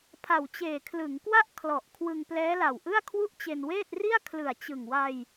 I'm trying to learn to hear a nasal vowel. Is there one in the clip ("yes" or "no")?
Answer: no